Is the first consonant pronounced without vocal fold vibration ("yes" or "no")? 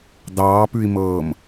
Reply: no